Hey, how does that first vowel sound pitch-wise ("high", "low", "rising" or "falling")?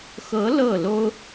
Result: rising